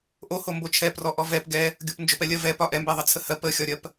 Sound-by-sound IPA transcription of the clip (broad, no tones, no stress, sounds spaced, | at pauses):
ʔ o h o m b o t͡ʃʰ ɛ p r ɔ ʔ ɔ v ɛ p ɡ ɛ | ɡʲ o p n d͡ʒ o p ɛ lʲ ɜ v ɛ p ɒ ʔ ɛ m b ɛ ðˤ ə t͡sʰ ə h ɜ p ə xʲ ɒ ɾʲ ɜ p